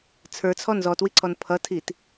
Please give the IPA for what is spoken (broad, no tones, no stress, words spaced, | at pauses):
t͡sʰə˞t͡sʰɔ nzɔtwiǀʰɔn pʰʌtʰit